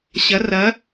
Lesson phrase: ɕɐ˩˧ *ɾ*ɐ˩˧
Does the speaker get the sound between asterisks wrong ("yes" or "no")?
yes